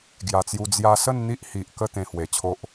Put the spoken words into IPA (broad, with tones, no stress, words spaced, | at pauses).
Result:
ɡja˨˩t͡sju˧ d͡zja˧sə˥˧n n̪i˦ʔhi˨ʔkə˥˧ t̪ẽ˧hwe˨˩t͡ɕʰo˦ʔ